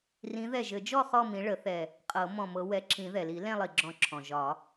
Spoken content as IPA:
r ĩ˨˦ ð ɛ˧˩ ʒ ɘ˨˩˦ d͡ʒ ɔ˥˧ χ ɔ˥˧ m ĩ˨˦ ɭ ə˨˩˦ θ ɛ˧˩ | qʼ ɤ˨˩˦ m ɔ̃˧˩ m ɤ˨˦ w ɛ˨˦ ǁ ĩ˨˩˦ ð ɛ˩ l i˨˩˦ l ɛ̃˥˧ lˠ i˩ ɡ͡ǁ ɔ̃˧˩ ǁʰ ɔ̃˩ ʒ ɒ˨˩˦

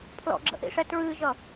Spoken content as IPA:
pʰ l ɔ̰ ɡ͡ǁ ə̰ ʔ ḭ ʂ ɛ t ɹ ɨː ʒ ʌ

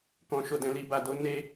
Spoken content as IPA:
k ɔ̃˨ ʃ o˨ d ɛ̃˨ l i˨ b a˨ d o˨˦ n e˧

